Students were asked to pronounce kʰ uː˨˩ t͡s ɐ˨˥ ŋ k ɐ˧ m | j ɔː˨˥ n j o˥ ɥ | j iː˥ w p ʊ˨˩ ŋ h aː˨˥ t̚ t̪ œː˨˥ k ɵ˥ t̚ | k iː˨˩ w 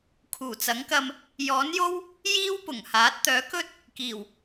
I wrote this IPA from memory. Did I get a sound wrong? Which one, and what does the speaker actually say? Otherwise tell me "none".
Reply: ɥ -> w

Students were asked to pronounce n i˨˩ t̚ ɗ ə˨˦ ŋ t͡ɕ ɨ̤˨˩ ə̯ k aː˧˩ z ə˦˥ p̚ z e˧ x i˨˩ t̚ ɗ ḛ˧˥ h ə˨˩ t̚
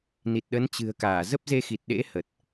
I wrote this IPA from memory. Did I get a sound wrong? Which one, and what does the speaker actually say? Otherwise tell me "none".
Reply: ŋ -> n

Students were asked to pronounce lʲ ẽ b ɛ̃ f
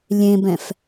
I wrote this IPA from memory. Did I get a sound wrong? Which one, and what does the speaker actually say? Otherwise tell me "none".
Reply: none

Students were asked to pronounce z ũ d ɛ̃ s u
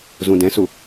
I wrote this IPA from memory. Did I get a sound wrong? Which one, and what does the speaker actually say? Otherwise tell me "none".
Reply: none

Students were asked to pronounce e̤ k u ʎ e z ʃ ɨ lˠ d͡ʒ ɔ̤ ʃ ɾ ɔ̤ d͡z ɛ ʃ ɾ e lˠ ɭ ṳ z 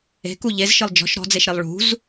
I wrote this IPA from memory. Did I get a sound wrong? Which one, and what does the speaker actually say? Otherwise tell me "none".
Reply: ɛ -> e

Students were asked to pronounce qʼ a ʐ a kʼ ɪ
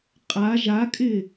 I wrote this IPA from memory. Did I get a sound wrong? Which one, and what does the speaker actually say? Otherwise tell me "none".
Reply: ʐ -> ʒ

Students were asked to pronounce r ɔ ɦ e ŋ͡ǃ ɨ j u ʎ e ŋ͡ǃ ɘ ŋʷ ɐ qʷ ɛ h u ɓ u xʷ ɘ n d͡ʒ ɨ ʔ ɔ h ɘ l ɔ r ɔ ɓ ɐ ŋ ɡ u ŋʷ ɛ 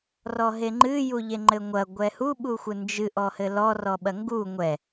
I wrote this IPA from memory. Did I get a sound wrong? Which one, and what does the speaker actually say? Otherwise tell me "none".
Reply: qʷ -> ɡʷ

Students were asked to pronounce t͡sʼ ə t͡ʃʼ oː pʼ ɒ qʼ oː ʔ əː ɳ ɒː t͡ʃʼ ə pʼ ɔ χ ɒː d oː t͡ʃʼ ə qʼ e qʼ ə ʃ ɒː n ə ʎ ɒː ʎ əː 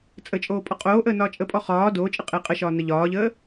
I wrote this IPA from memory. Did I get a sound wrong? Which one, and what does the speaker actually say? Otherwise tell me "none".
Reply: ɳ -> n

